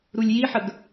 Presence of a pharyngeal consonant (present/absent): present